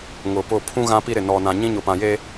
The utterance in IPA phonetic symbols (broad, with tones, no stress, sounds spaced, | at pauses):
ŋ ʊ˨ p ʊ˦˨ pʰ ũ˦ ɣ ã˦ p i˦ ɾ ɪ˨ n ɔ˨ n ã˨ ɲ ĩ˦ ɲ ʊ˨ p ã˨ j e˦